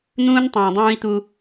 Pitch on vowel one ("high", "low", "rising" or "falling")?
high